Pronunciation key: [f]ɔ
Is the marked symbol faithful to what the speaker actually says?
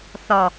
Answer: no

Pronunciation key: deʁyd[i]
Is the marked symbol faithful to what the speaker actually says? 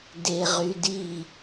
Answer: yes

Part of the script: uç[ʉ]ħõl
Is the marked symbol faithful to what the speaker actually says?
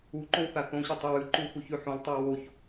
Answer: yes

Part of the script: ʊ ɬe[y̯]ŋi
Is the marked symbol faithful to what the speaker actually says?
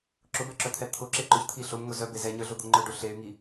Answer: yes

